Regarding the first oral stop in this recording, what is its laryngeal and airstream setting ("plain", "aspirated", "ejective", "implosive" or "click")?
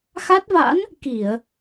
plain